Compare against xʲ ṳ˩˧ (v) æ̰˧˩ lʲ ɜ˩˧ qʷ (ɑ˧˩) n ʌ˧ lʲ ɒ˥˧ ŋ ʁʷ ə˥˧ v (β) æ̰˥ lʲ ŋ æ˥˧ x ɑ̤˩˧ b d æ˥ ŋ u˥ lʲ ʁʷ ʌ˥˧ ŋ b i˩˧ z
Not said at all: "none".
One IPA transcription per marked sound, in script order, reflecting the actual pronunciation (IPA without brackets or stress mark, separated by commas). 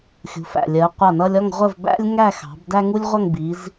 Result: f, ɑ˧˩, b